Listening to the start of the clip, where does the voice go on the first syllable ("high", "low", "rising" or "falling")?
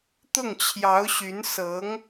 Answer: falling